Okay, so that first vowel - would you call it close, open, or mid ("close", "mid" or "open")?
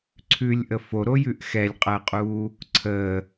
close